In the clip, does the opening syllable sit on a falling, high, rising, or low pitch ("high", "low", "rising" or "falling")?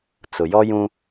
low